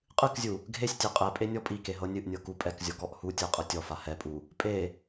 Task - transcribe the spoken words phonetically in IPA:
qʼɨkzʲu | ɡʱesʲ tʲɛqʼɛpʼe nʲɔpʼike ɦɤnʲɨʔnʲɤ kupʼɛkzʲɔ kɔʔhutʲɤ qʼɤtʲɔfa hɛpʼu | pʼe

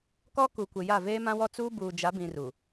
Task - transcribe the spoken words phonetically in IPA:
kɔ˦ ku˨kʷɪ˨ ja˦˨ veː˦mã˦wɔ˦ t͡suː˦buː˨d͡ʒa˨˦bĩ˨ ru˨

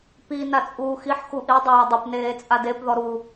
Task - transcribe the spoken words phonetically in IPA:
pi nat͡sʼuːxiħ xuʔi dˤaːdˤɪp neːt͡sʼadep ðɔɾu

